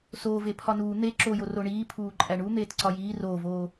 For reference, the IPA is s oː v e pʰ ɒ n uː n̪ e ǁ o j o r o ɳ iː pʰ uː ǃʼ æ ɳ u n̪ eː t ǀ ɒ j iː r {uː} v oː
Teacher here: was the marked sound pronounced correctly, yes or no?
no